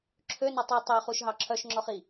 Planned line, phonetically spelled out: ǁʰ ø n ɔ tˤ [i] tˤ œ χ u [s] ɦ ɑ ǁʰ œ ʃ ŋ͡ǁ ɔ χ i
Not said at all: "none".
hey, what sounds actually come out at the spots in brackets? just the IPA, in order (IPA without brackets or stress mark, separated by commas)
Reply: i, ʃ